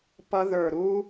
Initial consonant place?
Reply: labial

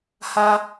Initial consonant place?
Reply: glottal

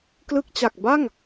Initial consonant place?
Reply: velar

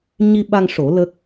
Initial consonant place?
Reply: palatal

